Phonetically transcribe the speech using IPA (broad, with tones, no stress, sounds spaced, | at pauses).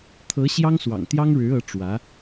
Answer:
t̪ʰ ɤ˧˥ ɕ j ɑ˥ ŋ s w ɑ̰˨˩ ŋ t̪ j ɑ˥ ŋ ɻ ɻ̩˧˥ ɤ˧˥ ʈ͡ʂ w ä˧˥